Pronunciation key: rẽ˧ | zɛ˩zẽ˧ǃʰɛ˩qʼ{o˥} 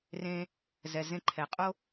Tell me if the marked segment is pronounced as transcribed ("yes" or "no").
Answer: yes